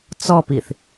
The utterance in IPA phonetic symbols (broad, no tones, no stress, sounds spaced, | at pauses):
t͡s ɔ p i θ